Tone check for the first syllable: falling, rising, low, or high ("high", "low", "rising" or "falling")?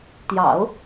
low